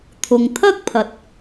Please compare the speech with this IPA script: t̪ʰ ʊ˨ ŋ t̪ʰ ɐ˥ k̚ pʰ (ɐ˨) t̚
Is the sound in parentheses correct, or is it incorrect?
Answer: correct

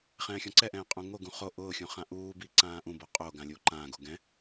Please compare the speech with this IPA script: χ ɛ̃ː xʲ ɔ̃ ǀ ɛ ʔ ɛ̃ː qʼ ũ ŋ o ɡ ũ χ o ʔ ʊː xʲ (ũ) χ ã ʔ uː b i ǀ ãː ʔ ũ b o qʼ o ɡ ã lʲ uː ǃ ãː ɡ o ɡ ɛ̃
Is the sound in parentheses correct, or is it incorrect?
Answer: correct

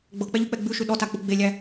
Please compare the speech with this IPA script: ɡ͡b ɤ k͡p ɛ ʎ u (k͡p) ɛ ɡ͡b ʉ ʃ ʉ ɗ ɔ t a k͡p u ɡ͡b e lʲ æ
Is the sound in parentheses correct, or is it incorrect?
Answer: correct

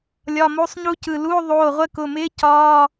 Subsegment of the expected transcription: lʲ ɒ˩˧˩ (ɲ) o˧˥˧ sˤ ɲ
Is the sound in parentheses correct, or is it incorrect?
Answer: incorrect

